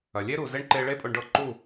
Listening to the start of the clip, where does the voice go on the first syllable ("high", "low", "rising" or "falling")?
low